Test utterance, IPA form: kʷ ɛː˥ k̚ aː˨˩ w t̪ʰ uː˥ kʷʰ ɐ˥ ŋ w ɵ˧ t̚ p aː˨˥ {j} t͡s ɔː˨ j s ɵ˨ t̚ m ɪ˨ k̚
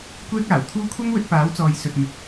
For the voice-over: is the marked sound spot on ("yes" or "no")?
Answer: no